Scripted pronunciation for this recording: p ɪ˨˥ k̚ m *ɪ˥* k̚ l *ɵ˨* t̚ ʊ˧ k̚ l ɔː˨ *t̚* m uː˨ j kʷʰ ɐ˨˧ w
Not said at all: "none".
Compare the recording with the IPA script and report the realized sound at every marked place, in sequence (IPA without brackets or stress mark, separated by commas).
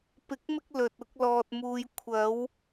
ɪ˧, ɵ˨, t̚